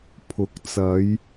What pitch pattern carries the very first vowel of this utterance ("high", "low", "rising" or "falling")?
rising